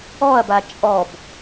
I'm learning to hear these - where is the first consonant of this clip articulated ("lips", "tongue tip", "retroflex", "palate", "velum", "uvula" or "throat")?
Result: lips